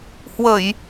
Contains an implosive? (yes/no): no